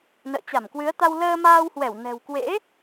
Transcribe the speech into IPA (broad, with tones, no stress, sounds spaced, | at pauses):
n ə̰ː˧˨ t͡ɕ a˧˩ m k w ɨ˨˦ ə̯ t̪ a˧ w l əː˧ m aː˧ w h w ɛ˧˩ w n ɛ̤˨˩ w k w ḛ˧˥